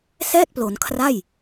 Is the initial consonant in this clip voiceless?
yes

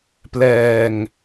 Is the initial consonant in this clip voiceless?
yes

